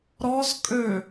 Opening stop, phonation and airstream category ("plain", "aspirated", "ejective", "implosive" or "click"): ejective